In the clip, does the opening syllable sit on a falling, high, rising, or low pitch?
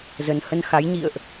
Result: low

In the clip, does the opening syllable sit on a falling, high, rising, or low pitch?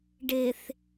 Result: low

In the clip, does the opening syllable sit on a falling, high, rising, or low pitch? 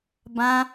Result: high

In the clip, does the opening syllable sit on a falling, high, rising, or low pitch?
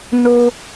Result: high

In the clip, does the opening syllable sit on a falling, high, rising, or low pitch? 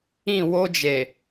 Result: falling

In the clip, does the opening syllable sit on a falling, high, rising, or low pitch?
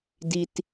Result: high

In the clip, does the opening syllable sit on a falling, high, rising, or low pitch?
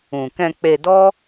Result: low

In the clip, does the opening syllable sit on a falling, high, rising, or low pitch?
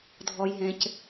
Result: low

